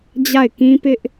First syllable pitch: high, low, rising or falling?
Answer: falling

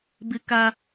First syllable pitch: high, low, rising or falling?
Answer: high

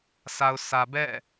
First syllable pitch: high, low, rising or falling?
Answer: low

